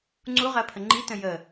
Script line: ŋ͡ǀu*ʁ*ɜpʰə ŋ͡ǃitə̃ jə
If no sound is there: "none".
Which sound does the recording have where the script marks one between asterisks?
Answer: ʁ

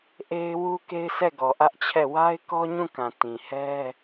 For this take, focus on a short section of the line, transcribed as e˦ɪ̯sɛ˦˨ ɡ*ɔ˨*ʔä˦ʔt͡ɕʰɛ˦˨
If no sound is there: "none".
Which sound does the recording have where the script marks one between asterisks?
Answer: ɔ˨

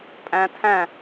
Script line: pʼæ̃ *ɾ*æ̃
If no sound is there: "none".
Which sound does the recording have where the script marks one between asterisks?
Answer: tʰ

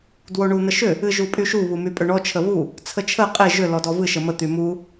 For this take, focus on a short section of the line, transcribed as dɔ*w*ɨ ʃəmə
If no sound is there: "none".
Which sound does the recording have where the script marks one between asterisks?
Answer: v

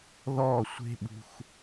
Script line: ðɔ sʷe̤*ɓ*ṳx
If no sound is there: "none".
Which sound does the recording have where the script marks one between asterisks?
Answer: ɓ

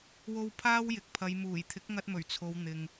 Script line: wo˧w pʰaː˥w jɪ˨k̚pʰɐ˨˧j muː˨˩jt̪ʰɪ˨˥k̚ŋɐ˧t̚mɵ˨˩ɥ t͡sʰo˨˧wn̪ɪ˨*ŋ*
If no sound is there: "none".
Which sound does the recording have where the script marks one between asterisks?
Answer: ŋ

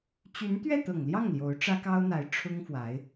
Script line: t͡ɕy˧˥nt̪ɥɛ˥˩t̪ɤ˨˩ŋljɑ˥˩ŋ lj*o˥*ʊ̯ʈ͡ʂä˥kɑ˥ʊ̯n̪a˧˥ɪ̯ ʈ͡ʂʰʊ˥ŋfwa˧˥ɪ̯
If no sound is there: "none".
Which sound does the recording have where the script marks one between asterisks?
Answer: o˧˥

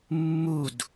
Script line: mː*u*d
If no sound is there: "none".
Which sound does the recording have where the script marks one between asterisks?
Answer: u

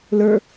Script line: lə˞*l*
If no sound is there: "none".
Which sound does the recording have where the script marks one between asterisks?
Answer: none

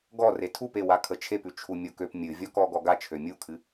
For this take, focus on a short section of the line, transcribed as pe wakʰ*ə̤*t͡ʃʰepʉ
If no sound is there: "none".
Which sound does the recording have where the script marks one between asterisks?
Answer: ə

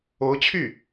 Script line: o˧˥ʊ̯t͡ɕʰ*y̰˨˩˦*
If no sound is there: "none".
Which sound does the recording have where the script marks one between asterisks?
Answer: y˥˩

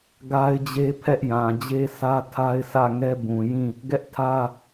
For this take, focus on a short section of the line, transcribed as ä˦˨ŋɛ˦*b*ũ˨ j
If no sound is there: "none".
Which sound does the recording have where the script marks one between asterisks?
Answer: b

